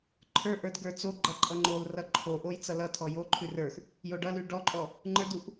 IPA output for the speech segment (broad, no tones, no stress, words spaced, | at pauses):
ǃʰə˞ʔə˞d ɡə˞t͡soɡ͡ǃʌ ǃʼʌŋ͡ǃolrʌ ǃʰoʔoj t͡sʌlʌtʰɔ joǃʰʉ rə˞x | joɖʌlʉ ɖɔǃʼɔ | ŋ͡ǃə˞duʔ